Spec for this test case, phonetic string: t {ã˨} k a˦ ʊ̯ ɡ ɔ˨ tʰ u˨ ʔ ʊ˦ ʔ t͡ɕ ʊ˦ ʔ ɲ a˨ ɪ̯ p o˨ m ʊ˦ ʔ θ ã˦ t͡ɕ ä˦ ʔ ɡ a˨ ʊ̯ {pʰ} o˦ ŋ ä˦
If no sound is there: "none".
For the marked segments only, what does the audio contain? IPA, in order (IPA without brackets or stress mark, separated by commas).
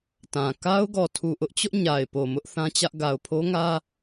ã˨, pʰ